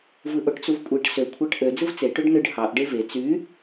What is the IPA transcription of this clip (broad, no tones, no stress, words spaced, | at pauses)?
vɯʔoʈt͡suvkʷʼeʈ sø kʷʰɑʈʔø d͡zɯvt͡se ʈøɖnɯɖ hɑʔ ɖeve t͡sy